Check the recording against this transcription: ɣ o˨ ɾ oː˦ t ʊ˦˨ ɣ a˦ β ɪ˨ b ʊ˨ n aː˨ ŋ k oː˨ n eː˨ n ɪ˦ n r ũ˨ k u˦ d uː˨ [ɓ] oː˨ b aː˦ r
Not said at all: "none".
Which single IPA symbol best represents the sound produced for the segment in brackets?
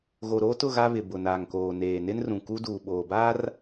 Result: ɓ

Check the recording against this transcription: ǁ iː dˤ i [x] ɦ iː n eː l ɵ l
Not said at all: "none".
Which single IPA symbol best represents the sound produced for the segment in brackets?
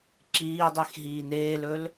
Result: x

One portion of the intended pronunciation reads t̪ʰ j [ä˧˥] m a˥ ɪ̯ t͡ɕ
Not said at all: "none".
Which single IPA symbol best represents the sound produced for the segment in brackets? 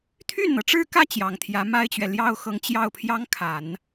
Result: ä˧˥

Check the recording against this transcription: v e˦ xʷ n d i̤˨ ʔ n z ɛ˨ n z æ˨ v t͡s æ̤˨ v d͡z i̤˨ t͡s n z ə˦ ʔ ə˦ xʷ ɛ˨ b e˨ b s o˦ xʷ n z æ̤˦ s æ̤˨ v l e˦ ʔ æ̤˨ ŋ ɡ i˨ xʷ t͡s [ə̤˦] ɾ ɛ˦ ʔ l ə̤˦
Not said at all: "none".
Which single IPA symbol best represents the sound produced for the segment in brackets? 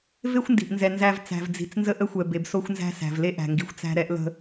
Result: æ̤˦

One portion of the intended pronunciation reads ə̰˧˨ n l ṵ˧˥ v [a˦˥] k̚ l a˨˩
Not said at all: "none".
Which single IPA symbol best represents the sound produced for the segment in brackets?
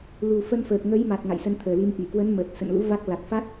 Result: a˦˥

